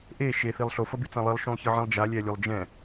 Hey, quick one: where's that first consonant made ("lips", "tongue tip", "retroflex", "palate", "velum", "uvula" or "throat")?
throat